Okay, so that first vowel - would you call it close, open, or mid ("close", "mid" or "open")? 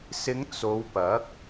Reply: close